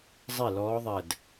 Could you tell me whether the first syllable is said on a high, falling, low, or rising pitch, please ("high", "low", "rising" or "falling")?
falling